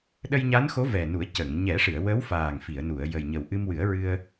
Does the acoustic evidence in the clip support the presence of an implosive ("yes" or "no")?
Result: yes